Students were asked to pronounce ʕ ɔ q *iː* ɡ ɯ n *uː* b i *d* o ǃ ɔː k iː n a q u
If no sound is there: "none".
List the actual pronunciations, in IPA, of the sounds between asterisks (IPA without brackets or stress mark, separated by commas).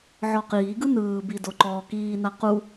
iː, ɯː, d